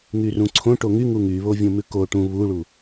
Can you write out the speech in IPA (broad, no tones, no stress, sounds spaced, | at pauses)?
ŋ y r ũ ǀʰ õ ʈ o ŋ y ŋ u ŋ y β o vʲ õ m ʉ k o ʈ ũ β u ɭ u